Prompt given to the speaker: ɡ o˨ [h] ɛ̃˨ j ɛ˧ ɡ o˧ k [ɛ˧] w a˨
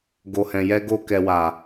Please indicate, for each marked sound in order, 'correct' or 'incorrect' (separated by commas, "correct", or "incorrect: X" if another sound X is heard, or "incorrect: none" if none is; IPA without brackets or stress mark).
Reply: correct, incorrect: ɛ˨